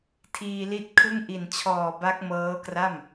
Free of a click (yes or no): yes